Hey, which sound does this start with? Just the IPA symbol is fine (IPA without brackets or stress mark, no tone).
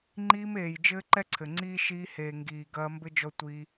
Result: ŋ͡ǃ